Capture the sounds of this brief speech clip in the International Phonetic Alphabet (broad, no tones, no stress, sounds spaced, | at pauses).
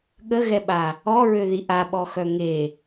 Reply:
ɠ ə ɣ ɛ ɓ a | ɔ ɹ ø ð i ʔ a ɓ ɔ x œ ŋ e